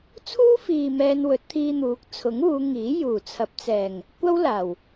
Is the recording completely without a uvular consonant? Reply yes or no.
yes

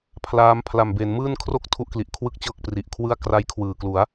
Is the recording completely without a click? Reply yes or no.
yes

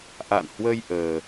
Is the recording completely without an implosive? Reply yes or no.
yes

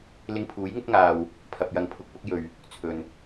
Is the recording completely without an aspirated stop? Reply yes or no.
no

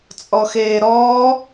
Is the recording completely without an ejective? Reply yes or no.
no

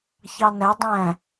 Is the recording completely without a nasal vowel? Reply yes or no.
no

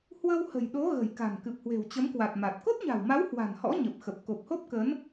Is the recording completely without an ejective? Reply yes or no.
yes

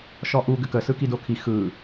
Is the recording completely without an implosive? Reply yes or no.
yes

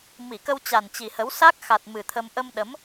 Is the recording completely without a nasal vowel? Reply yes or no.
yes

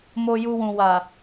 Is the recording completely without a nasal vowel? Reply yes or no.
no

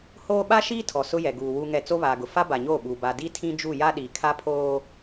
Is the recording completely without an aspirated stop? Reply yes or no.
no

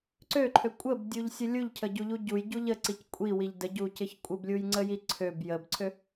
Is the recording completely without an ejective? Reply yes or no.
no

